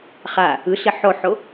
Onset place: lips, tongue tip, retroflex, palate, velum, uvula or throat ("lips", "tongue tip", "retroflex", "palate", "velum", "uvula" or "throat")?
uvula